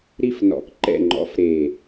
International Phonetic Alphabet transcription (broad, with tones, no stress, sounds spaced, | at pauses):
ɾ i˥˨ f n ɔ̰˧˥ k ǃ ɛ̰˥˨ ŋ͡ǃ ɔ̰˧˥ f ɾ e˨˩